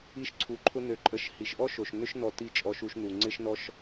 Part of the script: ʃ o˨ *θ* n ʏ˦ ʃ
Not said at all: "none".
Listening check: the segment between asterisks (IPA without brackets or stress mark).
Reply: ʃ